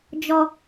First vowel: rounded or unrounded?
rounded